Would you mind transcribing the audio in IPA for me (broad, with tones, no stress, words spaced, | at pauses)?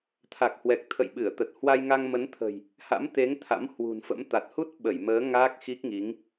t̪ʰa˨˩k̚hwɛ˨˩k̚ t̪ʰə̰˧˨jɓɨ˧˩ə̯t̪ə˨˩t̚ hwa˧jŋa˧ŋmə˨˦n t̪ʰə̤˨˩j | ha̰˧˥mt̪e˨˦ŋ t̪ʰa̰˧˥m hwṳ˨˩nfə̰˧˥m t̪a˨˩t̚hu˦˥t̚ ɓə˧˩jməː˨˦ ŋaː˦˥k̚xi˦˥k̚ŋi˨˦ŋ